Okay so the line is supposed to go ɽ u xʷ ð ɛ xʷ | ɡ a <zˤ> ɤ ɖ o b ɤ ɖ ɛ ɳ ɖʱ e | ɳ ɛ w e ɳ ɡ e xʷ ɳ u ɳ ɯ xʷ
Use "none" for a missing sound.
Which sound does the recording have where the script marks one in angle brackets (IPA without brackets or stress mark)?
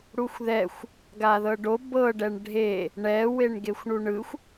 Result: ð